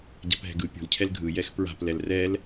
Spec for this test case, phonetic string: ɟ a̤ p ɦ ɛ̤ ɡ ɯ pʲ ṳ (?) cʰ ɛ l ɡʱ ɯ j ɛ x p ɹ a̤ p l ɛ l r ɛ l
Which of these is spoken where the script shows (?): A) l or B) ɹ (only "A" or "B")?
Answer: A